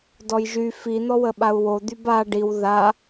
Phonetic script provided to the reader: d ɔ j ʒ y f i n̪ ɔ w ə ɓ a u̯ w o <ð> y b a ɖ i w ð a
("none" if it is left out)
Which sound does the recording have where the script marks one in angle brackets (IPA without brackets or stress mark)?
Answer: d̪